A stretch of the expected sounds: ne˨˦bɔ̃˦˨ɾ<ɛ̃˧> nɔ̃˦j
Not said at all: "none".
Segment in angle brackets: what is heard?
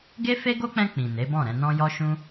ɛ̃˧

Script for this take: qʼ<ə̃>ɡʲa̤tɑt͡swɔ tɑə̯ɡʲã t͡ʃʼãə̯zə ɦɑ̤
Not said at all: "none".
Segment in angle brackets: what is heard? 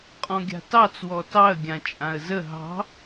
ɔ̃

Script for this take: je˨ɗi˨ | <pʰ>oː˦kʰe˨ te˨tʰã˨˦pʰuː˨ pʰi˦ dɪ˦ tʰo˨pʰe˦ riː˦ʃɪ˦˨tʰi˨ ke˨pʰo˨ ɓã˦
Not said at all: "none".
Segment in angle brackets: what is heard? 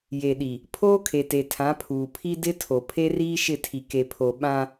pʰ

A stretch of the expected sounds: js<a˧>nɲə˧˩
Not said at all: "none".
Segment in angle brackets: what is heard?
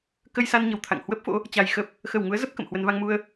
a˧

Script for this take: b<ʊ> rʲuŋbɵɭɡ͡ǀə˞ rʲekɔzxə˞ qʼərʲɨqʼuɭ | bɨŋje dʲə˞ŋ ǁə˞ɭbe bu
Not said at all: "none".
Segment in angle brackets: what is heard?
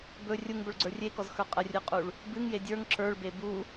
ɵ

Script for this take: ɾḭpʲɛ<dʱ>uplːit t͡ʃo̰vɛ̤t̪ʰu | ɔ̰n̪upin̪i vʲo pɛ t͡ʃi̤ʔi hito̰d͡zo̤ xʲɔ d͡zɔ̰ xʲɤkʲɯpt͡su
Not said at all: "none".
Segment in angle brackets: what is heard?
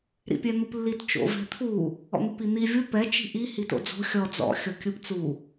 n̪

